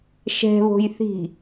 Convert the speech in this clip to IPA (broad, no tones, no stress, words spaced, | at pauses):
ʃɛ̤βo̤jθi̤